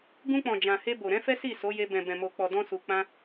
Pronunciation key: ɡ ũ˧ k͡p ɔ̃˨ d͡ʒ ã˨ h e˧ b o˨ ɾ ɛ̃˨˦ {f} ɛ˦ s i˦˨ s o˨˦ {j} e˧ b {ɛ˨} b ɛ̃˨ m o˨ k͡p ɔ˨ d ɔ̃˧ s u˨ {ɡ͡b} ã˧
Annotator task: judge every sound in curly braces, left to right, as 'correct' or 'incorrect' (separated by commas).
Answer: correct, correct, incorrect, incorrect